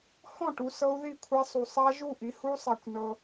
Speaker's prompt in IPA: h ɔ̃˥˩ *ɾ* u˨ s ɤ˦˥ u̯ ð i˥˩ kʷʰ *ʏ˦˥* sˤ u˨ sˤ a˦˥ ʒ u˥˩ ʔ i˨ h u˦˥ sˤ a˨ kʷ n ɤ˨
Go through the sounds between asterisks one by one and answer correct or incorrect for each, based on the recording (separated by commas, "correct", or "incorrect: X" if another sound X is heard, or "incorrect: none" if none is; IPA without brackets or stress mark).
incorrect: ʈ, incorrect: ɛ˦˥